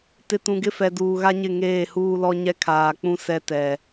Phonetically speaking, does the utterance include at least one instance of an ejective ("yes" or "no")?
no